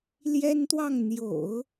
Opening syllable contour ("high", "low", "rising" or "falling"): high